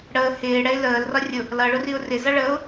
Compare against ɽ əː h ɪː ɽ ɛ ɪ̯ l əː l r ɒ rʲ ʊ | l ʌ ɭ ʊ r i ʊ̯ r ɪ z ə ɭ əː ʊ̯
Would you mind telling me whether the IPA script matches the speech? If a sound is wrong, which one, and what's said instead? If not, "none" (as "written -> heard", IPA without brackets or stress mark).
ə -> ʌ